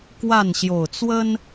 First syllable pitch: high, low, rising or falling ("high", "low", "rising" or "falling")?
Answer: falling